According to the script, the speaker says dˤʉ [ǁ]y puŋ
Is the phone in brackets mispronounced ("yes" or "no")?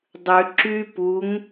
no